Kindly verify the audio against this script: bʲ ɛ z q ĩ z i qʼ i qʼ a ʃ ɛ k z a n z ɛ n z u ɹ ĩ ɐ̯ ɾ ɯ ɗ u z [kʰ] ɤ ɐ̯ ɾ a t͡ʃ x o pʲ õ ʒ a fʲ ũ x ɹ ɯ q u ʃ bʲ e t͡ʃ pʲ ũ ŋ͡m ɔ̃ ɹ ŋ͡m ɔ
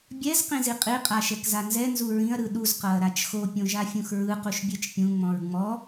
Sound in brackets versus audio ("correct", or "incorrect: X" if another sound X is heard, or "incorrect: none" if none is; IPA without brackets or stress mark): incorrect: q